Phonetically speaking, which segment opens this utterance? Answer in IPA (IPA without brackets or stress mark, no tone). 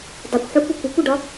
dˤ